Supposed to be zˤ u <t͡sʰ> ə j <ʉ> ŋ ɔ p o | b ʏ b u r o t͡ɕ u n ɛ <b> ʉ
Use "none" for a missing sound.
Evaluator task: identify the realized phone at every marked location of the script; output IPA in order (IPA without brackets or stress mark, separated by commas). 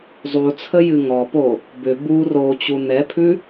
t͡sʰ, ɨ, pʰ